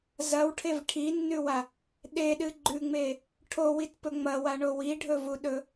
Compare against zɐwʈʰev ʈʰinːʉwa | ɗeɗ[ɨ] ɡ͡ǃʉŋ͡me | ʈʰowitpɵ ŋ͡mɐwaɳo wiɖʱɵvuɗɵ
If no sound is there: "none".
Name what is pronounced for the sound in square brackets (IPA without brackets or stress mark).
ɨ